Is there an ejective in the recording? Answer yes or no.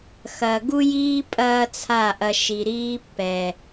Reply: yes